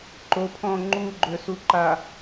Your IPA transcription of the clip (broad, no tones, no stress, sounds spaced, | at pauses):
ǃ o pʰ ɔ̃ ŋ͡ǃ u ɡ͡ǃ ø s u ǃ a